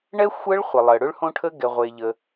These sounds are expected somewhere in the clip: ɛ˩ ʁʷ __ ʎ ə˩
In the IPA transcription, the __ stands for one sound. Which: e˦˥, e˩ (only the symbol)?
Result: e˩